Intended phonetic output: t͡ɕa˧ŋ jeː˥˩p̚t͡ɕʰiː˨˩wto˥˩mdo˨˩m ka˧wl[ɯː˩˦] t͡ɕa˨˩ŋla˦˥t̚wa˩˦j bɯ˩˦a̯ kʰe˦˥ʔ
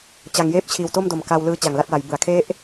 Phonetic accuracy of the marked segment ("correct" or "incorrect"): incorrect